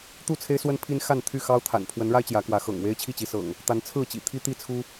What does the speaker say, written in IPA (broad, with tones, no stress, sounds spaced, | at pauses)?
t̪ u˥˨ t͡sʰ e˦ ɪ̯ s w ə˦ n pʰ i˦ n x a˥˨ n t̪ʰ y˥˨ x ɑ˦ ʊ̯ t̪ʰ a̰˨˩ n pʰ w ə˨˦ n ɻ a˦ ɪ̯ t͡ɕ j ä˨˦ k w ä˨˦ x ɤ̰˨˩ ŋ w e˦ ɪ̯ t͡ɕʰ i˥˨ t͡ɕ i˨˦ s ɤ̰˨˩ ŋ | t̪ a˨˦ n t͡sʰ ɹ̩˥˨ t͡ɕ ḭ˨˩ t̪ʰ i˦ t̪ i˥˨ t͡sʰ u˦